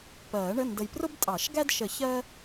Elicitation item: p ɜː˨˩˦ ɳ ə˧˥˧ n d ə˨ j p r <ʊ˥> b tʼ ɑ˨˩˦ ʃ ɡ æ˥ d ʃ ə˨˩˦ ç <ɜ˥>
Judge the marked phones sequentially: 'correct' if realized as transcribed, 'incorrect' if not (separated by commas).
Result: correct, correct